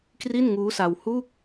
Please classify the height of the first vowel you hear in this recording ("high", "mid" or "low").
high